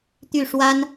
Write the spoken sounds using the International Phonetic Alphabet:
t̪y˥˩ʂwa˥n

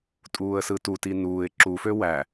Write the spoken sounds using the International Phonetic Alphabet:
tʼuːə̯sɯtuti nuːɪ̯ ǁufø wæ

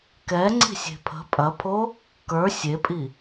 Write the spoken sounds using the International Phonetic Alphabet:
kɛŋ͡ǀi̤sʲe̤ pʰə̤ pʼɐpʰo | kə˞ sʲepʼi

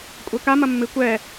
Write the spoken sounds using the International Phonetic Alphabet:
kʷʼɛka mɐmːɨ kʷɛ

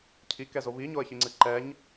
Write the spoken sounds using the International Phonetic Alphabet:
cʰikɛzo βiɲoə̯çiŋ͡ǀɨ ǃɛɲ

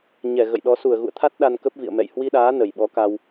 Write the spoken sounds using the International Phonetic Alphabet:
ɲɛ˧˩ ɣə̰˧˨jɗɔ˨˦ su˧˩ə̯ɣṵ˧˨ə̯t̪ʰa˦˥t̚ ɗa˧nkə˦˥p̚vḭ˧˨ə̯mɛ̰˧˨j hwi˧ɗaː˨˦ nə˨˩j ɓɔ˨˦ka˧w

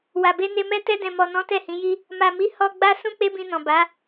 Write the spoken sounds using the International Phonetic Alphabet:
wa˨be˧ne˧mɛ˦ tɛ˧dɛ̃˨mɔ˨nɔ̃˨˦ tɛ˦˨hĩ˨˦ji˦ | ma˨mi˨˦ hɔ˧ɡ͡ba˦ sũ˦k͡pe˦bĩ˧nɔ̃˨ ba˨˦

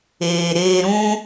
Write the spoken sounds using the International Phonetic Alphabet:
eː˨ɾeː˧ɾũ˦

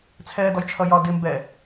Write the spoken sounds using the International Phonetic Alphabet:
t͡sʰɛːdɔjt͡ʃʰʌjɒ dɪ mbɛ

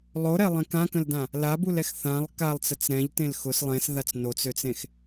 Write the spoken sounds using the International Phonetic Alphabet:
lˠoɾɛlˠẽ kãkə̃ldã | labulɛx θãlˠ kalˠt͡sət͡s ɾɛ̃ʎtẽl xʊs lˠẽsðat͡s not͡søt͡sẽx

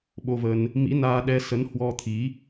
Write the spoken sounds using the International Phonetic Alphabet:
ɓo˧və˧n | mḭ˧˥naː˧ɗɛ˧ sə˨˦nhwɔ˧t̪ʰi˨˦

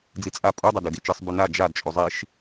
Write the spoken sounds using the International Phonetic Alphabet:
d͡zit͡sʼa pʼudˤɐdʉ dit͡ʃɨsˤbʉ na d͡ʒad t͡ʃʼuzˤiʃ

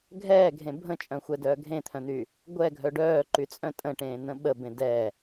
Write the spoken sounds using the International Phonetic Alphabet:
ɡʱɛːɡʱẽ bʱə̃t͡ʃʼœ̃xʷɛdœː ɡʱẽt̪ʰœ̃n̪y | ɡʷɛɡʱœ ɖœːǃyt͡sʼœ̃ tʼə̃ʈẽːn̪ə̃ ɓəbẽ dɛ

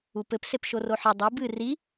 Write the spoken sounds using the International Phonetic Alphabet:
upɘp sepʃoroħɘ dˤi bɨ ri

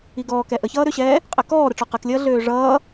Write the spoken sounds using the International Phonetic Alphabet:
iɡɔːkɛ ʔəçʌːɾøɕɛː | qʼɘkɔː ɾəʈ͡ʂɔqɘklʲʌː ɮøːʐʌː

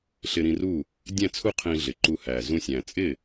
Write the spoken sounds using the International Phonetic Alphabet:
ɬɪ˧ɾĩ˧ru˥˩ | dʲæ̃˥˩t͡sʰu˥˩ qʰĩ˧ɮɪ˨˩ ǃu˧hæ˨˩ zũ˧sʲæ̃˨˩ t͡sʼɪ˥˩

